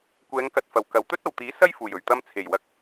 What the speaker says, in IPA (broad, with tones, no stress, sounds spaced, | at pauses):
kʷ ɛː˨˧ ŋ k ɐ˨ t̚ f ɐ˨˩ w k ɐ˨˩ w t̪ ɵ˥ t̚ ɐ˨˩ w t̪ iː˨˥ s ɐ˥ j f uː˨˩ j ɵ˨˩ ɥ t̪ ɐ˧ m t͡sʰ e˨˩ j w ɐ˨ k̚